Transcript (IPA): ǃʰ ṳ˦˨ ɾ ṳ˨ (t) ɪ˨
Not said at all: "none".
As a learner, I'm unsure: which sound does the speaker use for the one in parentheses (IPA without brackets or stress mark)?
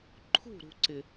ǀ